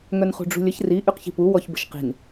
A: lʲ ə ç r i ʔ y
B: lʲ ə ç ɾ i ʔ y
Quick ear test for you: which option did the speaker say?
A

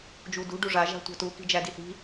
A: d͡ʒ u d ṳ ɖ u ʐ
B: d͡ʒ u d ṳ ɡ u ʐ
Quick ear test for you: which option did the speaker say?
A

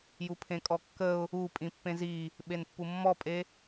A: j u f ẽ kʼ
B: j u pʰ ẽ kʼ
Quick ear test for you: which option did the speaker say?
B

